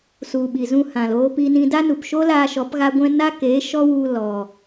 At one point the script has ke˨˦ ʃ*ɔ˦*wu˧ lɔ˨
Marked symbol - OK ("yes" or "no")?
yes